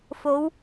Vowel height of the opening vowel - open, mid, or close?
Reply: mid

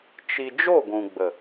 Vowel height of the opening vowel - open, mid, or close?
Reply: close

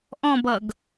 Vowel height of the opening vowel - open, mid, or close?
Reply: mid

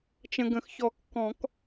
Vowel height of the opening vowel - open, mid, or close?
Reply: mid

